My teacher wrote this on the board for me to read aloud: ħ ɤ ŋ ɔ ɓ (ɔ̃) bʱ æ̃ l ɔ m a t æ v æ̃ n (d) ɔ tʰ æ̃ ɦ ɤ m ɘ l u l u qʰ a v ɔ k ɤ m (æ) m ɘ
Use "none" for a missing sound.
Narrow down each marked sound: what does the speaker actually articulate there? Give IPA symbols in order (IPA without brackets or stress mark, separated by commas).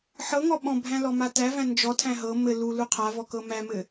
ɔ̃, d͡ʒ, æ